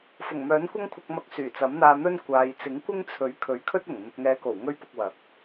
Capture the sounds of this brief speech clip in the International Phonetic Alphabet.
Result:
f ʊ˨˩ ŋ m œː˨˥ n kʷ ɐ˥ ŋ kʷʰ ɐ˧ k̚ m ɐ˧ k̚ s yː˨˩ t͡s ɐ˨˥ m n̪ aː˧ n̪ ɵ˥ n kʷ aː˨ j t͡s ɪ˨˥ ŋ kʷ ɪ˥ ŋ t͡sʰ ɵ˨˥ ɥ kʰ ɵ˨˥ ɥ kʰ ɵ˥ t̚ ʊ˨˩ ŋ n̪ ʊ˨ k̚ ŋ ɛː˨˧ k o˨˩ w ŋ ɵ˥ ɥ p ʊ˧ k̚ w ɐ˨˥ k̚

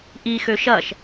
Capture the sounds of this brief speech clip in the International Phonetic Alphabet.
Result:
ʔ i x ø ʃ ɐ ʃ

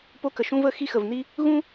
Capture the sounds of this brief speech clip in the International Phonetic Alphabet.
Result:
p o˥ k ə˧ ʃ ũ˥ v ə˧˥ x i˥ x ə˧ v n i˥ | ɣ ũ˥

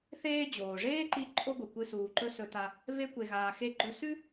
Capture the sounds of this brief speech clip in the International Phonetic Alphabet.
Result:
θ eː˦ d͡ʑ oː˩ ʐ eː˥ ǃ i˦ ǃʼ o˦ ɡʷ ɨ˩ kʷ ɨ˦ s uː˨ ǃ ɵ˥ s ɵ˨ t a˨ | v e˦ kʷ e˨ ɣ aː˨ x e˦ ɡ͡ǃ ɵ˦ s ʉ˥

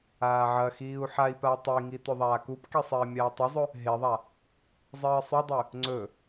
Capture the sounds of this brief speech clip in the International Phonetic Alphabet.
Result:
aː ʕ ɐ x iː u̯ ħ a i̯ p a tˤ i ŋ i t ɵ ðˤ aː k u p k i sˤ eː mʲ aː tˤ ɵ zˤ ɵ | ɦ e ðˤ a | zˤ iː sˤ u dˤ ʉ | ŋ͡ǀ ɵ

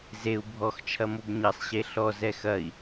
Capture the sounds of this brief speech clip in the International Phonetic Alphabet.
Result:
z e u̯ bʱ ɔ x t͡ʃʰ ɐ m o b ɲ ɐ sˤ ɕ e ɬ ɔ z ɛ x ɐ i̯

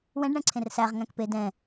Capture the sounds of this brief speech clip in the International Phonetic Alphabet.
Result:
w ɛ̃ ɖ ɳ ɛ̃ ǀʰ ẽ r s æ ʁ ŋ æ̃ k p e d ɛ̃

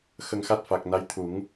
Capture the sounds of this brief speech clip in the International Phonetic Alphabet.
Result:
x ə˧ ŋ x a˦˥ t̚ f a˨˩ k̚ n a˧˥ j t̪ʰ u˨˩˦ ŋ

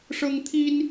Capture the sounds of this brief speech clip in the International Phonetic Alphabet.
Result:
ʂ ɤ˥ ŋ t̪ʰ i˥ n

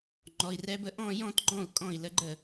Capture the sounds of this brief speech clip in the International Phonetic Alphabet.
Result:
ŋ͡ǃ ɔ˩˧˩ i̯ r ɛ˦˥ b ə˦˥ ʔ ɔ̃˥˧ j ɔ̃˥˧ t ɡ͡ǃ ɔ̃˥˩ u̯ kʼ ɔ̃˥˩ i̯ l ə˧˥˧ ɡ͡ǃ ə˥˩

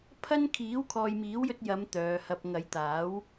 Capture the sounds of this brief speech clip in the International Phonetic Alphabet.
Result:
pʰ ɐ˥ n kʰ iː˨˥ w kʰ ɔː˨ j m iː˨˥ w j ɵ˧ t̚ j ɐ˨˧ m t̪ œː˨˧ h ɐ˧ p̚ ŋ ɐ˨˧ j t̪ aː˨˥ w

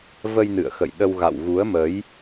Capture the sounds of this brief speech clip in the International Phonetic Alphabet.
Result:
v ə˧ j n ɨ̰˧˨ ə̯ x ə̰˧˨ j ɗ ə˧ w ɣ a̰˧˨ w ɣ u˨˦ ə̯ m ə˨˦ j

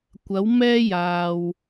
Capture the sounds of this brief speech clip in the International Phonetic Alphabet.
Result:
kʷ ɐ˨˧ w m ɛː˧ j aː˨ w

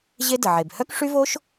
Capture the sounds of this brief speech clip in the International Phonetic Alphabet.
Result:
ʑ e˥ d ə˩ ʕ e˩ b h œ˥ k ʂ y˥ v o˥ ʃ

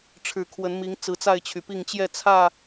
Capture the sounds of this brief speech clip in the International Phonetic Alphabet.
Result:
ʈ͡ʂʰ ɻ̩˨˩ kʰ w ə˨˦ n m i˨˦ ŋ t͡s ɹ̩˨˦ t͡s a˥˨ ɪ̯ t͡ɕʰ y˩ p i˥˨ ŋ t͡ɕ j ɛ˥˨ t͡sʰ ä˥˨

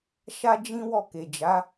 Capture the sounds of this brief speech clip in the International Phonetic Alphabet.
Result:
ʃ a˦ d͡ʒ ĩ˦ w ɔ˦˨ k e˨ d͡ʒ a˨˦

